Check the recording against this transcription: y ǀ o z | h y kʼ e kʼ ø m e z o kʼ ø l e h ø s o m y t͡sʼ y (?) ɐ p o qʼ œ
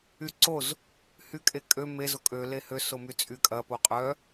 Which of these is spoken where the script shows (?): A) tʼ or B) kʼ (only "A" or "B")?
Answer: B